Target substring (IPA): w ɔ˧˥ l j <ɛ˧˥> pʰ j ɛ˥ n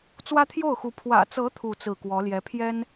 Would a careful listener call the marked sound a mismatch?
no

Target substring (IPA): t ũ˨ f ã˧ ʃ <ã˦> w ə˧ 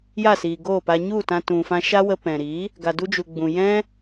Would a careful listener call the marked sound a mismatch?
yes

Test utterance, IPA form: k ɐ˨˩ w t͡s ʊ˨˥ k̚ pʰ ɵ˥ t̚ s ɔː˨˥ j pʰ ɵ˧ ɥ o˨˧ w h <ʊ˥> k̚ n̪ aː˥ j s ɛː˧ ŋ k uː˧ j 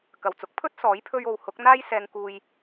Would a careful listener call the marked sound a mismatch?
yes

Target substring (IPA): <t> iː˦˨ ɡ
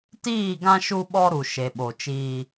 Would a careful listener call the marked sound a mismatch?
no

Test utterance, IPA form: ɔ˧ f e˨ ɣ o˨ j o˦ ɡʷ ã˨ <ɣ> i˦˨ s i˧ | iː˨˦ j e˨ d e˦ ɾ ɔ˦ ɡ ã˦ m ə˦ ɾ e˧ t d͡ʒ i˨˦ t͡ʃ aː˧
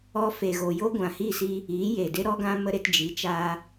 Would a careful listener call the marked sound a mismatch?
yes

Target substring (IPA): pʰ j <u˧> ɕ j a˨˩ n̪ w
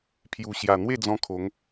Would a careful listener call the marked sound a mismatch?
yes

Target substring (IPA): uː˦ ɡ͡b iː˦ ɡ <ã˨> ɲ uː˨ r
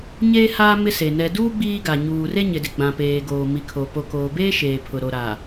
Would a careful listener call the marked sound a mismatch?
yes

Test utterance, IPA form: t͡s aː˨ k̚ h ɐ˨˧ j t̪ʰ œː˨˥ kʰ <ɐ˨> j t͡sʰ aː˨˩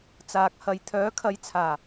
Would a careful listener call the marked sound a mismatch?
yes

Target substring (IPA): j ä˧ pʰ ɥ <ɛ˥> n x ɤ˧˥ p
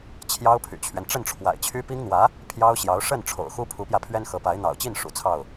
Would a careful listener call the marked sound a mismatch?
no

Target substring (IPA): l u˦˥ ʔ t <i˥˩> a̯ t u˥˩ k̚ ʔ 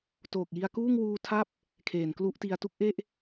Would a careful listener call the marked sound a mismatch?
yes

